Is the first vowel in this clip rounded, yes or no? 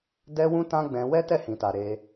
no